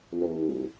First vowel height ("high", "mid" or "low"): mid